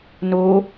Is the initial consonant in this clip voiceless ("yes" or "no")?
no